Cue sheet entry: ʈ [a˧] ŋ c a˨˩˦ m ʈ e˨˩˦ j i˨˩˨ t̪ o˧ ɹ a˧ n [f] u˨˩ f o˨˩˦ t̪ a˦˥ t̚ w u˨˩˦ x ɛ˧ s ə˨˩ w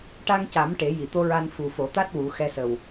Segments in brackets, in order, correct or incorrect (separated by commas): correct, correct